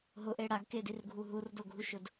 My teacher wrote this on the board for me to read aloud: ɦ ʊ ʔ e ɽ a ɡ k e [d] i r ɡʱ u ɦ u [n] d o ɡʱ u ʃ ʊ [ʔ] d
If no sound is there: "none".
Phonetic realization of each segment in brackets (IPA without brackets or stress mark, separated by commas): d, r, none